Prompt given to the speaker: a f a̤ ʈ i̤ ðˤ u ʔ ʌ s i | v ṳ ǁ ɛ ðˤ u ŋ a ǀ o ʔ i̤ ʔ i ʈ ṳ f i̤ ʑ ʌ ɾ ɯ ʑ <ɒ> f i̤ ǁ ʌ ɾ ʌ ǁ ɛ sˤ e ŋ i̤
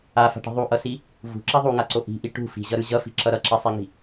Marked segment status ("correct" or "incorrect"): incorrect